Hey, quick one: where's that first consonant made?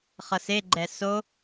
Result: uvula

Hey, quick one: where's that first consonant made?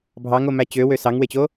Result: lips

